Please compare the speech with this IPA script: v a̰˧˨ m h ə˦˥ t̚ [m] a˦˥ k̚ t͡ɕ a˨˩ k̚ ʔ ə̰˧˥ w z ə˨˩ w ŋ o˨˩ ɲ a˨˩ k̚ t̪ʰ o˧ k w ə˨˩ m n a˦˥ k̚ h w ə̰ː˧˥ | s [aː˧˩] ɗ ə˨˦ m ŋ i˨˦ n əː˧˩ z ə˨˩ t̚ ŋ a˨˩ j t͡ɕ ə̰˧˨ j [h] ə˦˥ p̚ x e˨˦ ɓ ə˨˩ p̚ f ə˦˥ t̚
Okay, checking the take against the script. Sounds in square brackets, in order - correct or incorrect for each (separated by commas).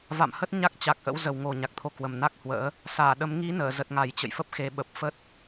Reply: incorrect, correct, incorrect